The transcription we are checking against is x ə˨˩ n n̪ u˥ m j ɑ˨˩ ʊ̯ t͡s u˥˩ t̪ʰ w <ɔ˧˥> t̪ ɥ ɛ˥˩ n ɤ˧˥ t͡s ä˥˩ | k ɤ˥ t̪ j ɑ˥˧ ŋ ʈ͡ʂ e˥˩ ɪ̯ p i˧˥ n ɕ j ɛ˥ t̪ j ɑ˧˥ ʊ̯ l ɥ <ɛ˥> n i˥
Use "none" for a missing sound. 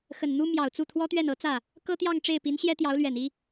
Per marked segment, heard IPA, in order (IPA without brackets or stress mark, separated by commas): ɔ˥, ɛ˨˩